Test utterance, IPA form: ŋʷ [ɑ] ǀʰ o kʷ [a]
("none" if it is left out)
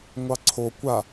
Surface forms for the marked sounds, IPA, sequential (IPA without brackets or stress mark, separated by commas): ɑ, a